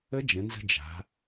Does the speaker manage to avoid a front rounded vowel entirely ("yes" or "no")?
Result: yes